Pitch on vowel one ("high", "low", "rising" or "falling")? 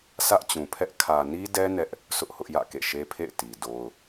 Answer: high